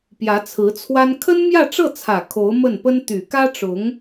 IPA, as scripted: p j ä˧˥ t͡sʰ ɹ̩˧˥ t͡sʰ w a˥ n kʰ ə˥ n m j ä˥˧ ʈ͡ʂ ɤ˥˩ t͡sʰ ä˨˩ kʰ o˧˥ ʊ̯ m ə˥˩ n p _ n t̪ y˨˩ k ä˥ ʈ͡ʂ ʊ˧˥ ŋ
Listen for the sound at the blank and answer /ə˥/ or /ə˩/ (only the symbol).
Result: ə˥